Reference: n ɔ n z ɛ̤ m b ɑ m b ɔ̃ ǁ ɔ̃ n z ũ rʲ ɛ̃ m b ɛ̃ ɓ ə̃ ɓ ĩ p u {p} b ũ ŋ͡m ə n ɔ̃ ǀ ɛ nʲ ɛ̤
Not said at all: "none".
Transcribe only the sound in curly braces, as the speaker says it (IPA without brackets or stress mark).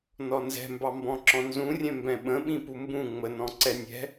m